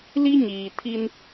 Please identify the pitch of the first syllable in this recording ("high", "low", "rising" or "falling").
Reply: high